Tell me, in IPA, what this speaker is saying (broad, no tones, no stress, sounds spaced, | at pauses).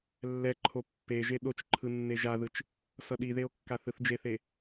lː ɛ ǃʰ o pː e ʒ e ɗ o t͡ʃ ǃʰ ɯ nː e ʒ a ð ɯ t͡ʃ | s ʌ ɗ i ð e o̯ kː a θ ɯ θ d͡ʒ e θ e